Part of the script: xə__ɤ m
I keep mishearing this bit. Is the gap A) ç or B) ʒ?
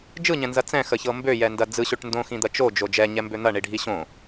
A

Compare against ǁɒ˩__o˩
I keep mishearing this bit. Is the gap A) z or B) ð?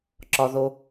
B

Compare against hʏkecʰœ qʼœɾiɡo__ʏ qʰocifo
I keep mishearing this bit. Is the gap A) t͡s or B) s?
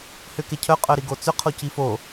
A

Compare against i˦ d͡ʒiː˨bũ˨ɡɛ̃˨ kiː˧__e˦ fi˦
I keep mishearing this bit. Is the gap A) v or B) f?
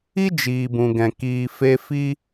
B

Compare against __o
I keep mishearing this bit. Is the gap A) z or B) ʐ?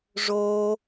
B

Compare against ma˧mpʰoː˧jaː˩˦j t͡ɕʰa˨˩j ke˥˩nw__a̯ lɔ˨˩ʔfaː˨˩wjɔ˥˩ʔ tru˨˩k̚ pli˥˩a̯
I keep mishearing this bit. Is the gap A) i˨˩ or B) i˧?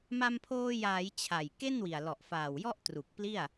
A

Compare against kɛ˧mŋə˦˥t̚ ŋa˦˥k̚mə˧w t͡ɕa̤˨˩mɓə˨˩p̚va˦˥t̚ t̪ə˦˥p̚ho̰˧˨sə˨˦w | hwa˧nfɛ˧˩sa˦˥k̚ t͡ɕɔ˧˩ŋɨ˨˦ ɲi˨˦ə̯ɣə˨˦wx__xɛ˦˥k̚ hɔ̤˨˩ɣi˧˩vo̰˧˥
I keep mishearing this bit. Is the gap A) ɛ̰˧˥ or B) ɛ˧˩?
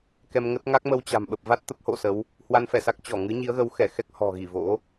B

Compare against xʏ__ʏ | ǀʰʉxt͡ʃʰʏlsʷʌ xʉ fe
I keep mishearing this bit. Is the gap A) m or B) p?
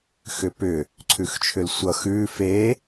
B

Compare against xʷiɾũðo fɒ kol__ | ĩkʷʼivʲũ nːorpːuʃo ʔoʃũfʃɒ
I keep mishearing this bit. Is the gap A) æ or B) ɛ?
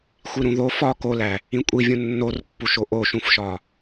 A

